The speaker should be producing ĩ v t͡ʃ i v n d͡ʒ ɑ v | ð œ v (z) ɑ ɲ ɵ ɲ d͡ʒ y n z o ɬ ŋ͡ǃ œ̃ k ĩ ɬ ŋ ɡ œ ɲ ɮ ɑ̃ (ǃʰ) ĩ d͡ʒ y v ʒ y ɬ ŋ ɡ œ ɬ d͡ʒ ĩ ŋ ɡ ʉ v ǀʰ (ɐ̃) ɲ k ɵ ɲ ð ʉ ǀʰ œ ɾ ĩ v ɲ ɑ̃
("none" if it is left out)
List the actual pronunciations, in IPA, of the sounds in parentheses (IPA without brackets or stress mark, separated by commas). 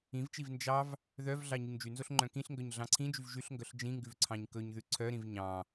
ɮ, ǀʰ, ɑ̃